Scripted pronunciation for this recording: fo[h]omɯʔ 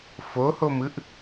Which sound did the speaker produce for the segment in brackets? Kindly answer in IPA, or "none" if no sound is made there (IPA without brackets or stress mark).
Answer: h